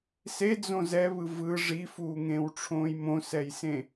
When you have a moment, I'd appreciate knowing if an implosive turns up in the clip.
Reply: no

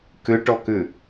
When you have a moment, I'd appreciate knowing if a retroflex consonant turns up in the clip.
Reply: yes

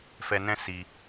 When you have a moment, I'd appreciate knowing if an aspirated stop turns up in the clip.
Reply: no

